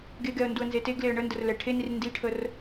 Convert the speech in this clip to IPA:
ɡ e ɡ ɛ ə̯ n d u ə̯ n z e t e ɡ l e ə̯ ɳ ə n d ə r l ɛ ʈʰ e n i r n d i ʈʰ ə r

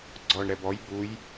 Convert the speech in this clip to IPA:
ɡ͡ǀ ɔ ɳ ɾ ɛ b ɔ j b u j

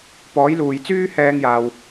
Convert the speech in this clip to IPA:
p ɔː˨˥ j l uː˨ j t͡s yː˥ h ɛː˥ ŋ j aː˧ w

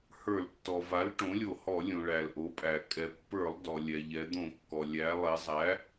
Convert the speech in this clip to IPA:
h ə˞˧˩˧ l tː ɔ˩ v a˩˥ l ʈ õ˩˥ lʲ o˧˩˧ h ɔ˧˩˧ lʲ õ˩ ɭ æ˩ l ʔ o˩˥ pʼ æ˩ kʼ ɛ˩ pː ə˞˧˩˧ lˠ d ɔ˩ lʲ ɛ˩ ʎ ɛ˩˧ d̪ õ˧˩˧ kː ɔ˩ lʲ æ˩˧ lˠ e˩˧ zˤ æ˩˥

